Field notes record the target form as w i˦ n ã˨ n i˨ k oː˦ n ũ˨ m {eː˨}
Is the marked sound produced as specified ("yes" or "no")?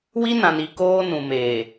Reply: yes